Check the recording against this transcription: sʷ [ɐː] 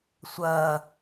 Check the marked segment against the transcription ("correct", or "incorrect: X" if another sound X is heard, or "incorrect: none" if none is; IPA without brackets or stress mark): correct